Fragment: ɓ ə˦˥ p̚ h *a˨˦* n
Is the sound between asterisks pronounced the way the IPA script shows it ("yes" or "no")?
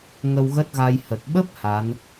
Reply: yes